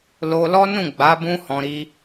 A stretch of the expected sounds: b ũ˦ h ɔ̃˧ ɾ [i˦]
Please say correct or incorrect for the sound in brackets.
correct